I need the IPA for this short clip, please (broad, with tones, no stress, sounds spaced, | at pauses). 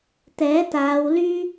t̪ ɛː˨˥ t̪ aː˨˧ w l yː˥